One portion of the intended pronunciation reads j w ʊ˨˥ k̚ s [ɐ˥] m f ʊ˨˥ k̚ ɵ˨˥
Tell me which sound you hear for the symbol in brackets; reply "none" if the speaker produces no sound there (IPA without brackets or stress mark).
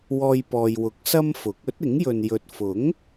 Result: ɐ˥